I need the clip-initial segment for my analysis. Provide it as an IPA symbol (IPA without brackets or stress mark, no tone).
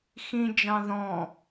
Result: x